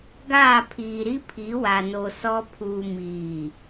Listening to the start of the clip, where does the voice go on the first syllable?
falling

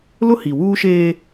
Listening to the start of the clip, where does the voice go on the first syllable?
high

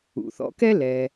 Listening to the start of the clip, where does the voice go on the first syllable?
low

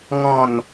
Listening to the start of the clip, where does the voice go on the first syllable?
falling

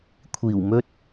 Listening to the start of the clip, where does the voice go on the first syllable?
low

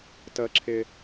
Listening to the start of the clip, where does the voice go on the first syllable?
low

